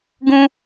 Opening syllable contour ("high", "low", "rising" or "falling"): high